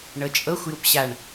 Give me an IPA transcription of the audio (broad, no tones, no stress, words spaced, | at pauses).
ɳɤt͡ʃʼɤxʷ jupɕaɳ